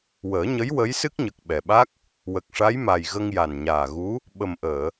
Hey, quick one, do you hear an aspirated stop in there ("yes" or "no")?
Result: no